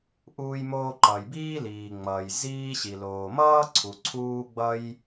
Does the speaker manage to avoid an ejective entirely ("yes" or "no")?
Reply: yes